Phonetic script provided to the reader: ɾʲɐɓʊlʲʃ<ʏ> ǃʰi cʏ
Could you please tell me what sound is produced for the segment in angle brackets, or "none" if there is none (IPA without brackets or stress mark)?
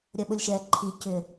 ɛ